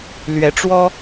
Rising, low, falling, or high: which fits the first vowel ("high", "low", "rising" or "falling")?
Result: rising